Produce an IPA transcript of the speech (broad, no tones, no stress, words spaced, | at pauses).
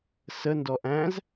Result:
sə ndɔʔæ̃z